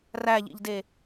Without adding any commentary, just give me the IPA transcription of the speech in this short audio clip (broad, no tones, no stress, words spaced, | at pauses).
ræʎḭʎde